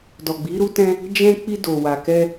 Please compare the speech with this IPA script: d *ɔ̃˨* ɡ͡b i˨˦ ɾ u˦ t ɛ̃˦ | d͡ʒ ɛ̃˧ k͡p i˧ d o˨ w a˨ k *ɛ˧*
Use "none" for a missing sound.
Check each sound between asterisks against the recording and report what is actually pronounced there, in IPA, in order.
ɔ˨, ɛ˧

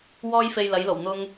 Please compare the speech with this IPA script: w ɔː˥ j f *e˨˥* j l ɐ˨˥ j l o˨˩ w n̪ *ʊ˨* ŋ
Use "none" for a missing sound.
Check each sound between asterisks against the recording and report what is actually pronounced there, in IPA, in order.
e˧, ʊ˥

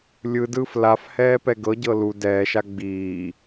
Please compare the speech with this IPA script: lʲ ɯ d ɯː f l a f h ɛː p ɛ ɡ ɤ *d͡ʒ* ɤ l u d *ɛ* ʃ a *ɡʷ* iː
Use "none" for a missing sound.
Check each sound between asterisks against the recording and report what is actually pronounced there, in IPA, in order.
ɟ, ɛː, ɡ͡b

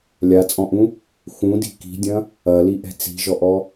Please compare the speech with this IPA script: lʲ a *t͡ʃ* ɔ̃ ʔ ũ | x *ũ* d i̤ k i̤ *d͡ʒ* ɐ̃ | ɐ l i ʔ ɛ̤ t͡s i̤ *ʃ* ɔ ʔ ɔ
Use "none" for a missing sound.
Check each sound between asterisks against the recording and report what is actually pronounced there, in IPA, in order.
t͡sʼ, ũ, dʲ, ʒ

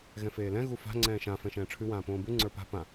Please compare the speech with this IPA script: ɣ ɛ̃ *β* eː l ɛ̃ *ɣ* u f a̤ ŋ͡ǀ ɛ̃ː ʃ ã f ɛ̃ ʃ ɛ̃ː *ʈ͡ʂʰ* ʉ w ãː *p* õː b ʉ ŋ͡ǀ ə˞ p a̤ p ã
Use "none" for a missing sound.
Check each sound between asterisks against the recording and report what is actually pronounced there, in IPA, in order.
f, ɣ, ʈ͡ʂʰ, p

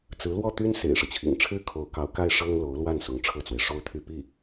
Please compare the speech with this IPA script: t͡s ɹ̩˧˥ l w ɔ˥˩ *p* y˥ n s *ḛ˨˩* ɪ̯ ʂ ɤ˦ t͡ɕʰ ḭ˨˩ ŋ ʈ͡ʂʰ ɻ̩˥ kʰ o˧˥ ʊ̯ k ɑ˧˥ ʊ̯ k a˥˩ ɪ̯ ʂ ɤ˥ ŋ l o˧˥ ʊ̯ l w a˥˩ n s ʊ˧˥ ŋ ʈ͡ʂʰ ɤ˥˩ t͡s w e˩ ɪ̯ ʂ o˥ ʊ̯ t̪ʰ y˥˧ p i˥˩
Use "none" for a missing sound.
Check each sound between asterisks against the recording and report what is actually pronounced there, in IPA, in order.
t̪, ḛ˨˩

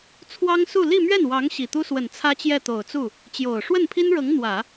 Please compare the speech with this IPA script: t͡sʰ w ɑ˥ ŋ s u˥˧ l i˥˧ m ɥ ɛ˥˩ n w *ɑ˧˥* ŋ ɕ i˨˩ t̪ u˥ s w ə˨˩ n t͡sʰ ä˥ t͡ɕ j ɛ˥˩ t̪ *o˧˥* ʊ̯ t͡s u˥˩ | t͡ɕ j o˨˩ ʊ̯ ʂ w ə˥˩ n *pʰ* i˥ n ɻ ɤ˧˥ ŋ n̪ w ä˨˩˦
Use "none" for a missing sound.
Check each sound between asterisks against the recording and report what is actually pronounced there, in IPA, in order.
ɑ˧˥, o˨˩, pʰ

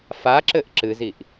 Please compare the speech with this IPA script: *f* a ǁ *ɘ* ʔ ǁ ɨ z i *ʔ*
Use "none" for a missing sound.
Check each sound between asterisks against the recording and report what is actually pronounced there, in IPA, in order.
f, ɘ, ʔ

